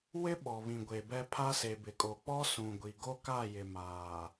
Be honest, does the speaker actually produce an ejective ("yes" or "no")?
yes